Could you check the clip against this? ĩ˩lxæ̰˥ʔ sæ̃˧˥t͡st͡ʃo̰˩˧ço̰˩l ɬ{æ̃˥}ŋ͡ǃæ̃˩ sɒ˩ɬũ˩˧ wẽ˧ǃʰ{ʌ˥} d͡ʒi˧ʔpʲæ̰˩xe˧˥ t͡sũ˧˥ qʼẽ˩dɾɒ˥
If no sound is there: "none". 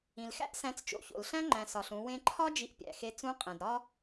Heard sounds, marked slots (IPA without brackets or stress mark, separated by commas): æ̃˥, ɒ˥